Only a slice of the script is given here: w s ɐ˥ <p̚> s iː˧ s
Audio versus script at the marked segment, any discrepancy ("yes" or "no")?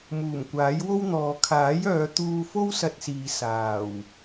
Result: yes